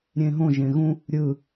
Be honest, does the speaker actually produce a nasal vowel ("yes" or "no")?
yes